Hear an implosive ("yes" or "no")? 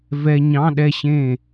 yes